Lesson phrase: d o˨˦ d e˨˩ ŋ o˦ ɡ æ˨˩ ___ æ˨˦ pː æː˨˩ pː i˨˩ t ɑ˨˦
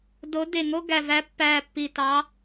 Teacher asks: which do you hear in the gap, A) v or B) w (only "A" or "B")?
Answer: A